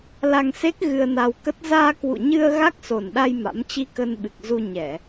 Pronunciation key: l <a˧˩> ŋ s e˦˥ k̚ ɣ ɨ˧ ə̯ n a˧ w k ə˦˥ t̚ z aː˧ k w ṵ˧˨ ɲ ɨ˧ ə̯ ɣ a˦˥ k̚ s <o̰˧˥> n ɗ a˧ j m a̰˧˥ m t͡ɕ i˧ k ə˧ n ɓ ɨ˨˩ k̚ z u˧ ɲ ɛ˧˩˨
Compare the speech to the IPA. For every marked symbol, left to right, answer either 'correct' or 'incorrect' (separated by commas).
incorrect, incorrect